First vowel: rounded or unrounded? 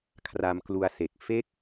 unrounded